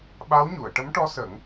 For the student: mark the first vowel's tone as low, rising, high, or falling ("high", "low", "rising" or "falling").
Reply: rising